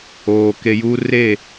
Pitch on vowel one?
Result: low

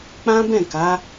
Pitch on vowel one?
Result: high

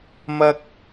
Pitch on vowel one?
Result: high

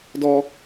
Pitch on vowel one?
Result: high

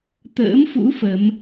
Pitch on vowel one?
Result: rising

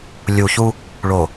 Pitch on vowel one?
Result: low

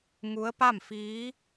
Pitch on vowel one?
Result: rising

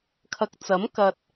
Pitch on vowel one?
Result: low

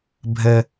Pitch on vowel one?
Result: low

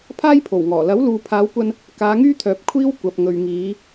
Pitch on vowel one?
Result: high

